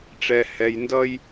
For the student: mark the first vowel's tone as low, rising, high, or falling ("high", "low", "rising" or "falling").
low